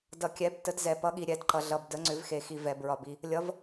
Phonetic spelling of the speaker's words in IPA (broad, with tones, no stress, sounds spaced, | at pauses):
d ʌ˨ kʲ ɛ˨˥ b t ə˨˥ d z ɛ˨ p ʌ˨˥ ɠ i˨ ɾʲ ɛ˨˥ d ǃ ʌ˨ ɮ ʌ˨ b d ə˨˥ ŋ͡ǀ ʏ˨˥ v x e˨ x i˨ v ɛ˨ b ɹ ɒ˨ b i˨ | lʲ ʌ˨˥ v